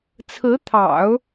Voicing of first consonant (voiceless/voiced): voiceless